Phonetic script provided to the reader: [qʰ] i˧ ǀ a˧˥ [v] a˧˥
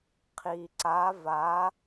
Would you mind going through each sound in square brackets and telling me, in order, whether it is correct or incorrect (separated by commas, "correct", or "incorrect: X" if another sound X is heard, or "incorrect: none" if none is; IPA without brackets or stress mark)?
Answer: correct, correct